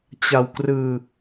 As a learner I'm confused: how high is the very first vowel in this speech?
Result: low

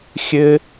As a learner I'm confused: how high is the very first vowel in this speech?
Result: mid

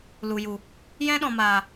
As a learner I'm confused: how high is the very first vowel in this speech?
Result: high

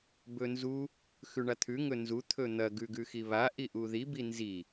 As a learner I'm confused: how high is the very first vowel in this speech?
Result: mid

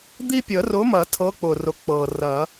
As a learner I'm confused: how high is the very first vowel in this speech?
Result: high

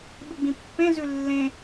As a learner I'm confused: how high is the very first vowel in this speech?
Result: high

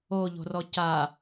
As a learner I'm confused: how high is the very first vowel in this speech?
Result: mid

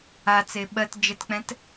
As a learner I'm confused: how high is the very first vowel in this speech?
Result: low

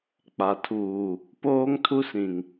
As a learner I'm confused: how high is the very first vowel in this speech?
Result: low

